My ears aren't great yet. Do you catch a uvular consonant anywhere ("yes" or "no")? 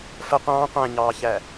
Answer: yes